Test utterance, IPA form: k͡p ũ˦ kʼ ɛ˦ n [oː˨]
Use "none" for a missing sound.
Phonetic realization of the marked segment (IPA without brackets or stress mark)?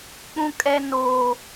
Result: oː˦